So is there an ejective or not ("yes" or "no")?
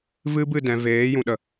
no